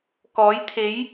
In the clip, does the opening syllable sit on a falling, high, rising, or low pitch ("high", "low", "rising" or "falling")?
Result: rising